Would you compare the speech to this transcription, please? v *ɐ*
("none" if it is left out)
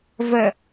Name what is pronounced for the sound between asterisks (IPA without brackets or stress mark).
ɐ